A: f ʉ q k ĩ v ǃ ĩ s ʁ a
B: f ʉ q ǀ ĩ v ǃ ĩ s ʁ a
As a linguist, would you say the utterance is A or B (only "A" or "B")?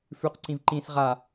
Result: B